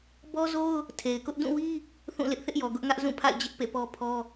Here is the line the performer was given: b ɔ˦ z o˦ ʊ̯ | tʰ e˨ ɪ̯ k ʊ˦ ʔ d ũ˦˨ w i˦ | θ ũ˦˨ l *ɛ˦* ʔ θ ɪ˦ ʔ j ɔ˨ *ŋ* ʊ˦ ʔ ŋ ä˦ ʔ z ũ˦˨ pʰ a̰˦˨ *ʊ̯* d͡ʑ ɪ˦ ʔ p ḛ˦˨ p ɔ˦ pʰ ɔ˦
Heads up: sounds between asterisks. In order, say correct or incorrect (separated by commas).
incorrect, incorrect, incorrect